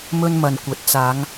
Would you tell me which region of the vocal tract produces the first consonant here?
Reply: lips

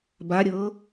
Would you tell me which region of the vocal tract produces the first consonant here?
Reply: lips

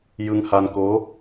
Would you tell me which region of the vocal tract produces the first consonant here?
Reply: palate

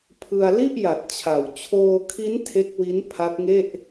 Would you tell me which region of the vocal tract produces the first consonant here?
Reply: lips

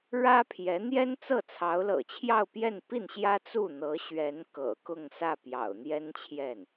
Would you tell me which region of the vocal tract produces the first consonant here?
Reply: retroflex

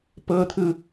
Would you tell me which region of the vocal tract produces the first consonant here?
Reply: lips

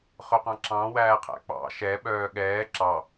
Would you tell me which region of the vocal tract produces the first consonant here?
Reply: uvula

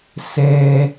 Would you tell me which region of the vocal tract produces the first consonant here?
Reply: tongue tip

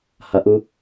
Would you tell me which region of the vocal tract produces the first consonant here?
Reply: throat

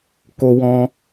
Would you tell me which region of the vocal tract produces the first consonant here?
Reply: velum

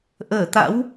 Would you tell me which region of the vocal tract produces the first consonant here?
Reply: throat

